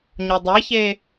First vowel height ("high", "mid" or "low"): mid